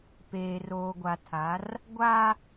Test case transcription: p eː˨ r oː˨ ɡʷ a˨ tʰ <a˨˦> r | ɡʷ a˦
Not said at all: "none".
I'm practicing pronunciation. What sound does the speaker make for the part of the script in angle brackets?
a˨˦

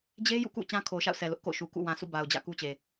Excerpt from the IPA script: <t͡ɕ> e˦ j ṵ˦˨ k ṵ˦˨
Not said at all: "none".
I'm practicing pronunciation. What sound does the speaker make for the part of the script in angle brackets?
d͡ʑ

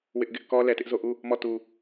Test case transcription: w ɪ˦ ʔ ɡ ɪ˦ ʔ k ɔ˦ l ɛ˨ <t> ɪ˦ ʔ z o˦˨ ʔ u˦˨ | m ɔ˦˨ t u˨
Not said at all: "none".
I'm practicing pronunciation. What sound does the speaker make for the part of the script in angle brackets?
t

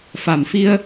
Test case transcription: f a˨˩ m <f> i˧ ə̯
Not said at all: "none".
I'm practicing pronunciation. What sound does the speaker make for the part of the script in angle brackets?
f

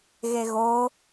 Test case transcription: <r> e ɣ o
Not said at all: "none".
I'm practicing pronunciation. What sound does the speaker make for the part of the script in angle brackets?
ɣ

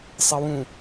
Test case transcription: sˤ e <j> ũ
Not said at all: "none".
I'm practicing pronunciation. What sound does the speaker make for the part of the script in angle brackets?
w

